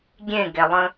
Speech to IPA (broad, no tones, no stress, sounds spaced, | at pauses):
ɡʲ ẽ ɡ ɛ lˠ ə̃